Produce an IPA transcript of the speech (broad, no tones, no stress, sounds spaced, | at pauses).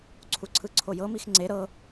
ǀʰ u ǀʰ ɯ ǀʰ o j ɤ m i x ŋ͡ǀ e ɾ ɤ